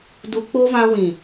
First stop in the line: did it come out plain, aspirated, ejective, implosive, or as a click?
plain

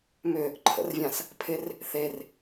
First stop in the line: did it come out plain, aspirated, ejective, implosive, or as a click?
click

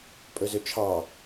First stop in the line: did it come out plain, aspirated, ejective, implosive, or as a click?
ejective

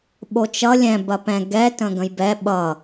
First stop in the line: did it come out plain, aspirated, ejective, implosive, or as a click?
implosive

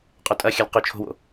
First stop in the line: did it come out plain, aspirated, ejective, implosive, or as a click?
ejective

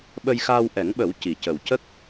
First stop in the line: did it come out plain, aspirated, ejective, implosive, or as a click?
implosive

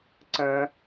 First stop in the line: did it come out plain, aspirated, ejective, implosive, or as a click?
click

